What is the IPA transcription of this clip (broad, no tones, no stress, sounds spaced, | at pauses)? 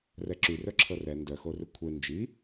r ɛ ǁ y r œ ǁʰ ɤ r ɛ n d œ x o r ʏ kʷʰ e n d͡ʒ i